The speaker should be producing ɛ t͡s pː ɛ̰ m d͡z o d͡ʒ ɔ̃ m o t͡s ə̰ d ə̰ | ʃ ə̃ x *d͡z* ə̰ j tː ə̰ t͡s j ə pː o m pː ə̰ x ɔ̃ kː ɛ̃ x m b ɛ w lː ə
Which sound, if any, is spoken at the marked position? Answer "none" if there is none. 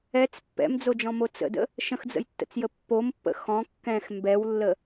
d͡z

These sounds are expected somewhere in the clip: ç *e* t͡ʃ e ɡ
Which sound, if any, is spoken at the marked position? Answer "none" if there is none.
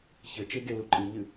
ɘ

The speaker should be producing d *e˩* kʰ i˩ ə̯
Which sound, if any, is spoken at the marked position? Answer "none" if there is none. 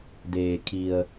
eː˩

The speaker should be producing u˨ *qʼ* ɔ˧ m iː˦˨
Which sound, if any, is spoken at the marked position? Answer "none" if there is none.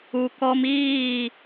k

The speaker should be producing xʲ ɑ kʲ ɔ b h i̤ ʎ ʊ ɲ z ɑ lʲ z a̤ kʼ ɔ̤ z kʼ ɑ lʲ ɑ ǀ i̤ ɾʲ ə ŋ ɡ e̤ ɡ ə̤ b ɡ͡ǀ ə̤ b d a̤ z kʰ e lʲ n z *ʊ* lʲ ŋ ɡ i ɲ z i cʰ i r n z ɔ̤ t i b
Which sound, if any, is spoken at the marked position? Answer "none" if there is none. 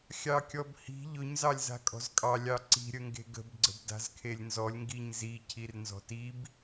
ɔ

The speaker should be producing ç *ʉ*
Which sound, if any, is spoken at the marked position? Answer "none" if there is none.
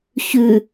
ʉ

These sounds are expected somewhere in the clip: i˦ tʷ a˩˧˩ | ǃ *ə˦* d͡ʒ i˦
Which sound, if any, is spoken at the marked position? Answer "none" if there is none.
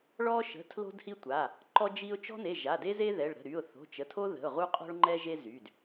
ɔ˦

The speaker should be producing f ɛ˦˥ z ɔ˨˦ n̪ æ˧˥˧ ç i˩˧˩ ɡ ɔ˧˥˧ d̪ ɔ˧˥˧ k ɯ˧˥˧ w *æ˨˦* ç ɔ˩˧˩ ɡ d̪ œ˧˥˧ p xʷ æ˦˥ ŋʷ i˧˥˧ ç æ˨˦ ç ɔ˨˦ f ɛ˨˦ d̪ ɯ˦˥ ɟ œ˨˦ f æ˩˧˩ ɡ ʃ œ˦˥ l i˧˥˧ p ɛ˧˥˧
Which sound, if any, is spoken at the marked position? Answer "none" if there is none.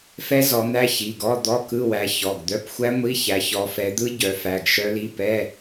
æ˨˦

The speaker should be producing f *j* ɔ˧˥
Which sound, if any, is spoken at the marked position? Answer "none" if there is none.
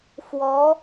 w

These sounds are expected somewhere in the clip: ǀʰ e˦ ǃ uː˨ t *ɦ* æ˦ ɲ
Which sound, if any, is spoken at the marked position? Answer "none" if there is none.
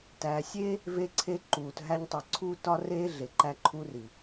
ɦ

